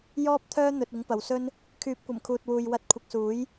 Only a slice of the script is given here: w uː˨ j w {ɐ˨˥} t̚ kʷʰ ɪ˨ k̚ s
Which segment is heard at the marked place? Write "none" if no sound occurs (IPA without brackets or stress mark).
ɐ˨˥